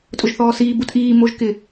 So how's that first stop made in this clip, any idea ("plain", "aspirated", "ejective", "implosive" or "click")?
ejective